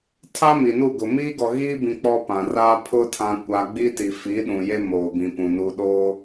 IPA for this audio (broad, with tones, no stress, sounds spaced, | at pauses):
tʰ a˦ m i˨ n u˦˨ ɡ ʊ˨ m iː˦ ɡ ɔ˨ ɣ iː˦ b ĩ˨ k͡p ɔ˦ p ã˨ r a˦ pʰ ʊ˦ tʰ ã˦ kʷ a˦ ɡ͡b i˦ t i˨ f i˨˦ ɗ ũ˨ j e˦ m oː˨ b ĩ˨ p ũ˨ n u˨ ɗ oː˦